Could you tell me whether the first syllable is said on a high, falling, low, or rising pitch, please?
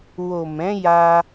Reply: low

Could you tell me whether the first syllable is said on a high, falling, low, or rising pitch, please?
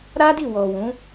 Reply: high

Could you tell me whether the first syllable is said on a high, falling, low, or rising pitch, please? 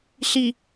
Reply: low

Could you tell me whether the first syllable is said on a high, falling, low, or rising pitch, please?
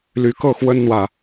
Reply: rising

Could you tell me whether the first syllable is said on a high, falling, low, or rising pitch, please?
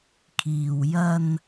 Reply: low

